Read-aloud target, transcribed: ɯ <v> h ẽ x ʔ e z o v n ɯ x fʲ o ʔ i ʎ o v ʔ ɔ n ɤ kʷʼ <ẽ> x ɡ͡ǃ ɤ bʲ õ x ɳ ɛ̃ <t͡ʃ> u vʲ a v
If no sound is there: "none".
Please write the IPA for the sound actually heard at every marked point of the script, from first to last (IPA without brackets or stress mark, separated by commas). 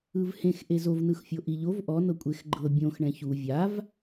v, e, ç